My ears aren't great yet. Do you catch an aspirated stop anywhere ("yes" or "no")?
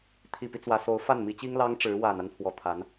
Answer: yes